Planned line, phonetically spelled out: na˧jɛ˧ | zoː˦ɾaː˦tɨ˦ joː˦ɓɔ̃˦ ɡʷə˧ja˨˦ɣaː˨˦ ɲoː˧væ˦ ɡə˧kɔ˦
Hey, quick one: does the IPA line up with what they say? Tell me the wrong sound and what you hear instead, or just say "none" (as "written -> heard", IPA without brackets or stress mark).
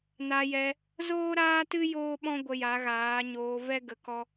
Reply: æ˦ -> ɛ˦